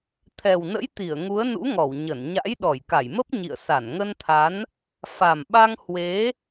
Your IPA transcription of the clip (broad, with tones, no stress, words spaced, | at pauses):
t̪ʰɛ˨˩wnə̰˧˥jt̪i˧˩ə̯ ŋu˨˦ə̯nṵ˧˥ŋɔ˧˩w ɲə˧˩nɲa̰˧˥j ɗɔ˧˩jka˧˩jmə˦˥p̚ ɲḭ˧˨ə̯ sa˧˩nŋə˧nt̪ʰa˨˦n | fa˨˩mɓa˧ŋ hwe˨˦